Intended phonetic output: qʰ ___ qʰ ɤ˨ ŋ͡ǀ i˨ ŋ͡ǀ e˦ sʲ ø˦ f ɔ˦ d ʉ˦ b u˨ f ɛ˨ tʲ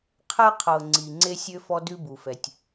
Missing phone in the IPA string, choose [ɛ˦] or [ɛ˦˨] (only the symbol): ɛ˦